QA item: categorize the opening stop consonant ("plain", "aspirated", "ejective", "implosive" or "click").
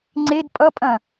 click